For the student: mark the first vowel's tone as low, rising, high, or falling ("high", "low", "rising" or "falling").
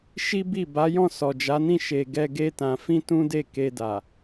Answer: high